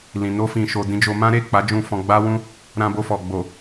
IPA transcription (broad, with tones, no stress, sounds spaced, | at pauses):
l ĩ˨ n o˧ f ĩ˨ ʃ o˨ d ĩ˧ d͡ʒ o˧ m ã˦ ɾ e˦˨ k͡p a˨˦ d͡ʒ ũ˧ f ɔ̃˧ ɡ͡b a˦ w ũ˦ | ɾ ã˧ b o˧ f ɔ˨ ɡ͡b o˨